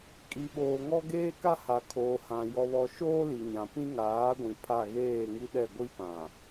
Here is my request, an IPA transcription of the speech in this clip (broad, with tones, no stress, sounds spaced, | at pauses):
kʼ i˨ ɓ oː˨ ŋ ɔ˦ ɡ eː˦ k a˦ h a˨ kʰ oː˨ h ã˨ j ɔ˨ β ɔ˨ ʃ oː˦ l i˨ ɲ ã˨ p ĩ˦ ŋ aː˨˦ ɡʷ ĩ˨ pʰ a˦˨ ɣ eː˦˨ ŋ i˦ ɗ ɛ˦˨ ɡʷ i˦ p ã˨